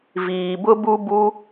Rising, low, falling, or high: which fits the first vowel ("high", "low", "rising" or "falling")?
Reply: low